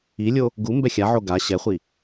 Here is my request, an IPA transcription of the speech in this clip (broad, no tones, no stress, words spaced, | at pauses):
ilʲo | ɡu mbɛxʲaʕo ɡa ɕɛχʷi